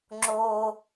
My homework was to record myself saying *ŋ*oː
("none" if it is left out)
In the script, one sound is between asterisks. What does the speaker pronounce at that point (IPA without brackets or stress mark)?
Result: ŋ͡ǁ